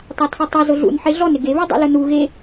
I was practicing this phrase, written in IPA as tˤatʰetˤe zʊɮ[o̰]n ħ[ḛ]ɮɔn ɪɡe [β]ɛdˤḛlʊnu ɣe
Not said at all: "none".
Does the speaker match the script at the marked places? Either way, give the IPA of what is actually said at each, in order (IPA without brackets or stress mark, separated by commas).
ṵ, e, β